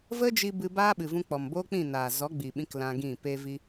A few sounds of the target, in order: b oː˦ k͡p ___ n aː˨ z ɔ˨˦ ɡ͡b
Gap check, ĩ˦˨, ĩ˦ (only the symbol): ĩ˦˨